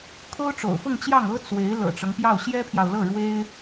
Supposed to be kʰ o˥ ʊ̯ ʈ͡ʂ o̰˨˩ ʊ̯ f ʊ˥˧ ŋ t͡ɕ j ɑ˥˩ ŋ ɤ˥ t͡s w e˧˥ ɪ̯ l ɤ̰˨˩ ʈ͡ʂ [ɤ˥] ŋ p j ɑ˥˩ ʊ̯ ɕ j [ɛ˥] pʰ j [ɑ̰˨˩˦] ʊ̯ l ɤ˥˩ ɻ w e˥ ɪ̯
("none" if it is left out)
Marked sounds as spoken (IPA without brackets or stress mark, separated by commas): ɤ˦, ɛ˥, ɑ˨